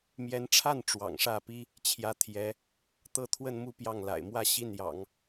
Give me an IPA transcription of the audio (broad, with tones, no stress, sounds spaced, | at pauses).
m j ɛ˧˥ n ʈ͡ʂʰ a˥˩ n ʈ͡ʂ w ɑ̰˨˩ ŋ ʂ ä˥˩ p i˥ | t͡ɕʰ j ä˧˥ t̪ʰ j ɛ˧˥ | t̪ ɤ˥˧ t̪ʰ w ə˥˧ n m u˥˧ p j ɑ˥˩ ŋ l a̰˨˩ ɪ̯ m w ä˥˧ ɕ i˥˩ n j ɑ̰˨˩˦ ŋ